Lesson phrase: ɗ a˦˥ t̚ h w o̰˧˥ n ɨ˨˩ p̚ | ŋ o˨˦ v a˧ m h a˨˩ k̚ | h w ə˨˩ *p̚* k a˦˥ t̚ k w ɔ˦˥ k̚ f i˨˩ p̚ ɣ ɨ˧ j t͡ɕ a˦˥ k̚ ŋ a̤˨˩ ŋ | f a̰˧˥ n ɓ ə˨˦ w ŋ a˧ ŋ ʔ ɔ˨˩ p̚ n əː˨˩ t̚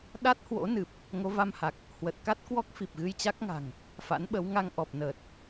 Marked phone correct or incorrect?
incorrect